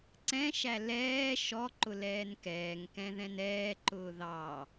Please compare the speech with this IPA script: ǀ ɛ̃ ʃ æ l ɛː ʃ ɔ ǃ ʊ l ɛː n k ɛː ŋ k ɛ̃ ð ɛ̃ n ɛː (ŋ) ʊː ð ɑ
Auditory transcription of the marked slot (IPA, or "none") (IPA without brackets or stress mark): ǃ